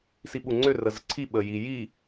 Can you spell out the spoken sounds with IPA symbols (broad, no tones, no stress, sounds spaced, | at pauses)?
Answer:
s i ɓ u ŋ͡ǀ ø r ə z ə ǀʰ i ɓ ə j i j i